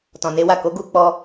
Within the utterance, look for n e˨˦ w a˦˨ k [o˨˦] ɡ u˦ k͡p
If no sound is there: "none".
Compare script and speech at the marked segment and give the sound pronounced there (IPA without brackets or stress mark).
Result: o˨˦